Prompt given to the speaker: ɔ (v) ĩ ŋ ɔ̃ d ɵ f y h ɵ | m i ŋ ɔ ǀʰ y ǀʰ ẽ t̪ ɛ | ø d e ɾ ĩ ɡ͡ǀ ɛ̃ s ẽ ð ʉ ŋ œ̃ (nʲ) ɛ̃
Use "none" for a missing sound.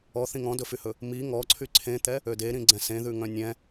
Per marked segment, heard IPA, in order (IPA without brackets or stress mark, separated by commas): θ, nʲ